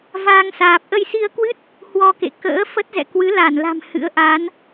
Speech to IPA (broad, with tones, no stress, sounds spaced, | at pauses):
v aː˧ ŋ s aː˨˩ p̚ ʔ ə˧ j s i˧ ə̯ k w ɨ˦˥ t̚ | h w ɔ˧ k ḛ˧˨ k ə̰ː˧˥ f ə˦˥ t̚ z ɛ̰˧˨ k w ɨ˨˦ l a˧˩ n l a̤˨˩ m h ɨ̰˧˥ ə̯ ʔ a˨˦ n